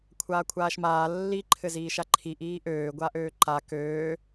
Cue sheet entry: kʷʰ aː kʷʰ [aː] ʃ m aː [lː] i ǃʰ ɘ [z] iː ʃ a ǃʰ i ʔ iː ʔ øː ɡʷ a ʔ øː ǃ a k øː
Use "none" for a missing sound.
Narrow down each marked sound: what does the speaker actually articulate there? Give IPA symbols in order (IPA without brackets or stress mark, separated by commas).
aː, lː, z